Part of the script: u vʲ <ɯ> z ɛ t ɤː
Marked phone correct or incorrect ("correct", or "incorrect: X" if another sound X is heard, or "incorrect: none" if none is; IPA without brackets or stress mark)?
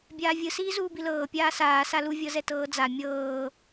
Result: incorrect: ɤ